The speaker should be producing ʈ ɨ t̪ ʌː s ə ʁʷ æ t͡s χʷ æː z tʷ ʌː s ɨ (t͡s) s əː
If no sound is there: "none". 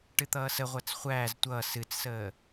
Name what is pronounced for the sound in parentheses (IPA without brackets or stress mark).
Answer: t͡s